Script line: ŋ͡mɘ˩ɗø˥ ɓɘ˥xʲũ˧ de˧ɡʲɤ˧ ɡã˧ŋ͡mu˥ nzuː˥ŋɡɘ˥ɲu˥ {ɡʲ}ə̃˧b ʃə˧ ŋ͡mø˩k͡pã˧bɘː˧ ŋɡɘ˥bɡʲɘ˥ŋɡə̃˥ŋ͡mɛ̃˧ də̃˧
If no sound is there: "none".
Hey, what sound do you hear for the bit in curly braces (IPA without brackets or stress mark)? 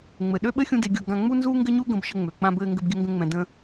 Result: ɡ